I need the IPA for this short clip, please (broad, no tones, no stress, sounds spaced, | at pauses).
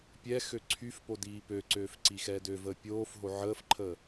pʲ ɛ x ø ǀʰ y f p o d iː p ø ǀ øː f ǀ i x ɛː d ø v əː pʲ oː f ɦ o ʕ əː f ǃʰ əː